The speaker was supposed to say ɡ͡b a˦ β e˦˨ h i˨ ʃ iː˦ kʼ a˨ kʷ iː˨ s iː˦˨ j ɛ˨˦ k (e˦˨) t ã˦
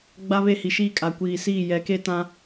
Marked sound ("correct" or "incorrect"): incorrect